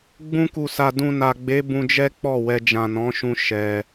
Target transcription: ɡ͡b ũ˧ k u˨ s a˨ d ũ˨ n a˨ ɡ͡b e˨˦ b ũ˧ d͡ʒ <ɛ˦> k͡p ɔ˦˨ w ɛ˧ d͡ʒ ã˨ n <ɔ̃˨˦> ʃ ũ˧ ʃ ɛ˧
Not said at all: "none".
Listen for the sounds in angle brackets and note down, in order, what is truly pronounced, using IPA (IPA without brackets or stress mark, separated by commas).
ɛ˦, ɔ̃˨˦